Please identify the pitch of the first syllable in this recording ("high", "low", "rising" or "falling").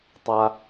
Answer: high